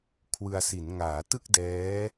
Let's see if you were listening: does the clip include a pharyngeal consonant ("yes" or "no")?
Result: no